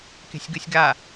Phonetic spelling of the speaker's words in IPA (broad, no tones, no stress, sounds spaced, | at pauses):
k e̤ sʲ ɡ ɯ sʲ ɡ a